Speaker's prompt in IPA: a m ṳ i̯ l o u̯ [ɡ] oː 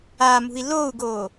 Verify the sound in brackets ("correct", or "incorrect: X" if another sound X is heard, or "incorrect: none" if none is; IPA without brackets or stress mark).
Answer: correct